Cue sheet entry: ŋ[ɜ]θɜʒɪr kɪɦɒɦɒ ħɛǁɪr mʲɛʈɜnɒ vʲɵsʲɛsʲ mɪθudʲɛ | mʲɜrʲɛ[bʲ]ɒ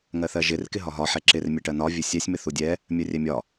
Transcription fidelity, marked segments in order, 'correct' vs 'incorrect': correct, incorrect: mʲ

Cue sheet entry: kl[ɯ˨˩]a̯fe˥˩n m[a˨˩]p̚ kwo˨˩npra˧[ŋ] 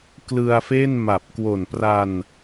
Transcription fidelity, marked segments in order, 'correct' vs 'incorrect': incorrect: ɯ˧, correct, incorrect: n

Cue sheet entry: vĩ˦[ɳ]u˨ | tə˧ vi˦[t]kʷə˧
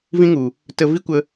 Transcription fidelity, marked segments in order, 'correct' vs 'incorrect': incorrect: ŋ, incorrect: none

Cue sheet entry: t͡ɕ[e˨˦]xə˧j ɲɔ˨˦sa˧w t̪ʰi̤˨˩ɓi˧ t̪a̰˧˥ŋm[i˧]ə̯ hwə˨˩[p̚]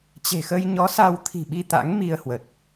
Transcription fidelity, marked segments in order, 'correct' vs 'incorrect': incorrect: e̤˨˩, correct, incorrect: t̚

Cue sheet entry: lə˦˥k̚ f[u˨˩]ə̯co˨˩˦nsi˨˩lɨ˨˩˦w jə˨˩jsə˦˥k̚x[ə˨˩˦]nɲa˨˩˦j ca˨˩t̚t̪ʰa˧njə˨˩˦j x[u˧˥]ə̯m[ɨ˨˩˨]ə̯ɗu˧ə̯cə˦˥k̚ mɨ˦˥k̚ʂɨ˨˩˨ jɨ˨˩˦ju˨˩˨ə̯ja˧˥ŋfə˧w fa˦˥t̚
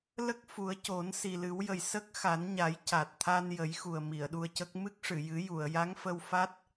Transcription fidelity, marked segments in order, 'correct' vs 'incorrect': incorrect: u˨˩˦, incorrect: a˨˩˦, incorrect: u˨˩, incorrect: i˨˩˨

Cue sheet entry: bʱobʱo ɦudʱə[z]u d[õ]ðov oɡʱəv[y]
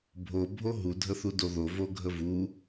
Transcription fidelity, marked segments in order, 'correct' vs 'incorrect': incorrect: θ, incorrect: o, incorrect: u

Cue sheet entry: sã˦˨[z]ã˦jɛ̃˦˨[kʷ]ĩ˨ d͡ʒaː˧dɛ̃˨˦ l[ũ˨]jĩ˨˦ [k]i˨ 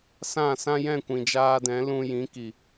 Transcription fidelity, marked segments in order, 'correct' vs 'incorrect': incorrect: s, correct, incorrect: ũ˧, correct

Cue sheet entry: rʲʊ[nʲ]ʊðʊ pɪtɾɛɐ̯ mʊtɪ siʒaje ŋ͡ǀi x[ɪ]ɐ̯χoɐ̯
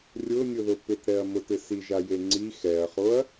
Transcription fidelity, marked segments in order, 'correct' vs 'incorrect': correct, incorrect: ɛ

